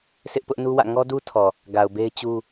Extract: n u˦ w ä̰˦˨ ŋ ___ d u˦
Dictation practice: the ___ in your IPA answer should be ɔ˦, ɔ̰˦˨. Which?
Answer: ɔ˦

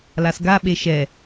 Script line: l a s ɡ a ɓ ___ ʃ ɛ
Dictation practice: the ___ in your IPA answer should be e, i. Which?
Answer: e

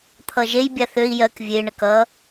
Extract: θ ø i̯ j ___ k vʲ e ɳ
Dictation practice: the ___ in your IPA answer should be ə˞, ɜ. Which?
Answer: ɜ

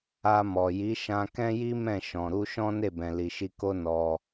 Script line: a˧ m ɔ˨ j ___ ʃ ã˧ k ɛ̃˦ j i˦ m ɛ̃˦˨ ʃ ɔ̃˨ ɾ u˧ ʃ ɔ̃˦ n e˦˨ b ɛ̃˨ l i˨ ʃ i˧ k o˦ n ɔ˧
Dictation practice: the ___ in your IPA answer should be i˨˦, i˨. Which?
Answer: i˨˦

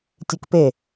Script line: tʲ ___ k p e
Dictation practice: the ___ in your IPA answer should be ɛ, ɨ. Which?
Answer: ɨ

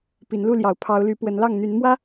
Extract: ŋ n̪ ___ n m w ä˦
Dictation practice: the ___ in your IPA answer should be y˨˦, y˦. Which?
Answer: y˨˦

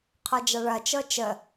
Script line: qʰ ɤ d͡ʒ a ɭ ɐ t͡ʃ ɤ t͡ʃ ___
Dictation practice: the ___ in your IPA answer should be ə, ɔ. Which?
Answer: ə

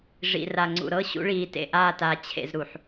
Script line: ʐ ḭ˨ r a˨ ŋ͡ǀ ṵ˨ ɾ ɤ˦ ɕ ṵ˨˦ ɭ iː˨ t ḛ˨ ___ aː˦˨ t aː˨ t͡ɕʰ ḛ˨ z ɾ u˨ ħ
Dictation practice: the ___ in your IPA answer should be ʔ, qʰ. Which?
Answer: ʔ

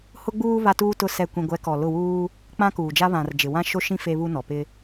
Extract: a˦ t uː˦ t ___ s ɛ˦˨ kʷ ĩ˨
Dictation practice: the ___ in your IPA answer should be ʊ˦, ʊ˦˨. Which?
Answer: ʊ˦˨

